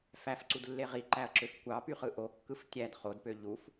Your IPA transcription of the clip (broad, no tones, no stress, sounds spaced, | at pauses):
f æ f ǀ u d lː e ʁ i ǃ æ ɐ̯ ǁ ø f kʷ ɑ p y χ ɯ ʔ o kː ɯ f tʲ æ d χ o d p ø ʎ u f